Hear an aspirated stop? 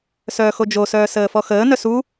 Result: no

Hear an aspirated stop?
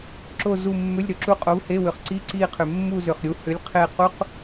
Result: yes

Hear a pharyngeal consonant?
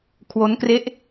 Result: no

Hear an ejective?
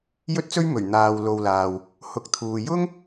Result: no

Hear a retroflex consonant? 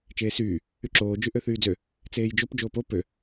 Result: no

